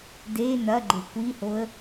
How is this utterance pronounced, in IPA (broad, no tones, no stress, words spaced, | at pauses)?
de nɐɡ͡ǃe kʷihoə̯